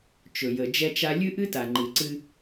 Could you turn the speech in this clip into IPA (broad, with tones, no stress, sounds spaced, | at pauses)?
t͡ʃ ɵ˨ j ə˨ d͡ʒ ɛ˦ t͡ʃ a˦ lʲ ɨ˦ ʔ ɨ˦ t a˨ ŋ͡ǃ ɨ˨ ǀ ɨ˦